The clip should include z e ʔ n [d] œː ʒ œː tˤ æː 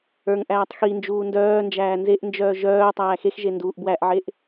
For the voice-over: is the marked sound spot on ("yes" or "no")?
no